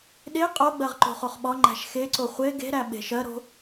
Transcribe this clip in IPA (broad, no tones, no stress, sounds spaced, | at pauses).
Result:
ɗ e qʼ o ɡ͡b ɜ ʁ ǃ o̤ χ o χ ɓ ɒ ŋ͡ǃ æ̤ ʃ x e ǀ o χʷ e ɡ e̤ ɾ æ ɓ e̤ ʃ ɜ ɾ o̤